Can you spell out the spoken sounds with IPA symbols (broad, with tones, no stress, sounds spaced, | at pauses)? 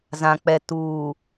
z ã˨ k͡p ɛ˨ t uː˨